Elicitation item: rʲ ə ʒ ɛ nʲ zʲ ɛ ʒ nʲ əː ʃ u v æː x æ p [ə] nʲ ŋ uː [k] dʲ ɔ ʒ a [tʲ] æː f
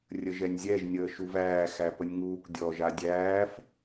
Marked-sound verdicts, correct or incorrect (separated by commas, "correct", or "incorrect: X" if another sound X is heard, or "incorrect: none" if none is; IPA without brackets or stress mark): correct, correct, incorrect: dʲ